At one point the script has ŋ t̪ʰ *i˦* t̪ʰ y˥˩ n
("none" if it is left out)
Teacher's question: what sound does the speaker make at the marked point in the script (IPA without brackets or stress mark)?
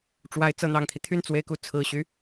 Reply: i˦